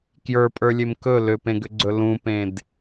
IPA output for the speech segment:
k j ə˞ pʼ ə˞ lʲ e m k ɵ l ʏ p ẽ ɡ ʏ ɡ͡ǀ ɵ l ũ p ẽ d

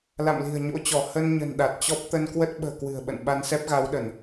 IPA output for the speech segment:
l a̰˧˨ m l i̤˨˩ ə̯ ɲ o̰˧˥ t͡ɕ ɔ˧˩ h ə˧ n ɲ ə̤˨˩ n ɗ a˨˩ t̚ t͡ɕ ɔ˦˥ p̚ t̪ ə˧ n k w ə˦˥ t̚ ɓ ə̤ː˨˩ k w ɨ̤˨˩ ə̯ ɓ ə̰˧˨ n ɓ a˧ n s ɛ˦˥ p̚ ɣ a˨˦ w ɗ ə˧˩˨ n

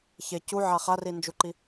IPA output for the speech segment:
ç e c u ʕ a χ a r i n d͡ʒ u ǃ i

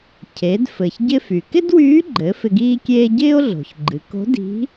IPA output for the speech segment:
cʰ e˩˧ d f ɘ˩ ç ɟ ɪ˧ f y˩ k ɪ˥ d w yː˧˥ ɡ͡ǃ ɘ˩˧ f ɪ˧ ɡ iː˥ kʲ eː˥ ɟ ɪː˥ o̯ ɮ o̤˩ ç ɡ͡ǃ ɨ˩˧ k o̤˧˥ d i̤˧˥

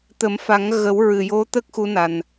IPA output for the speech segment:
t̪ ə˨˩˦ m f a˨˩˦ ŋ ɣ ə˨˩˦ w ɹ ɨ˨˩ j o˧˥ t̪ ə˦˥ k̚ x u˧˥ n a˨˩ n

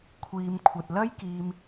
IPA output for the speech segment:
kʷʰ iː˨ m kʷʰ ɐ˨ t̚ l ɐ˥ j k iː˧ m

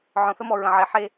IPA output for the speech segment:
ʕ ɔ̃˨ θ ə˦ m ɔ˨ ɹ ə̃˨ ʕ e˨ ħ e˦

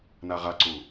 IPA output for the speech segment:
n a ʁ a ǀ u

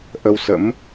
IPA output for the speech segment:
ʔ ə˧ w s ə̰˧˥ m

